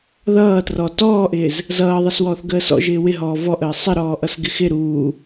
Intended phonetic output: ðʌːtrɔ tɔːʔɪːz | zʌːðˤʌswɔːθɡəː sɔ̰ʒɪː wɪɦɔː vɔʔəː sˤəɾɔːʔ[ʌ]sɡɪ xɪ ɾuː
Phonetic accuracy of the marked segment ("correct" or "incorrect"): correct